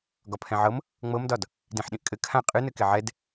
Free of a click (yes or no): yes